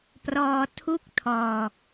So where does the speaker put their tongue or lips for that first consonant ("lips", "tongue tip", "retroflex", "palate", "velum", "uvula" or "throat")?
lips